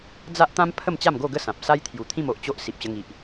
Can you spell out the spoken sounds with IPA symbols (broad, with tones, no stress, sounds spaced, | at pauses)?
d͡z a˦ ʔ t̪ ã˦ m pʰ ə˥˧ m t͡ɕ a˥˧ m ɡ o˥˧ ɡ ə˥˧ s ã˨ p̚ s a˦ j t̪ʰ j u˨˩ t̪ʰ ĩ˥˧ m o˨ ʔ t͡ɕ o˦ ʔ s i˨ p̚ ɕ ə˧ ŋ i˨ ʔ